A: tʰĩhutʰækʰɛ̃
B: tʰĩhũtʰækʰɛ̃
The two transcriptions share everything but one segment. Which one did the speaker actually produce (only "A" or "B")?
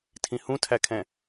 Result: B